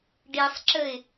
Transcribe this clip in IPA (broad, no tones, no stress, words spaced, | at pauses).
ɖisˤǁəɪ̯